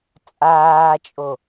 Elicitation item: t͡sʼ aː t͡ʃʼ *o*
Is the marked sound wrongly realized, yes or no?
no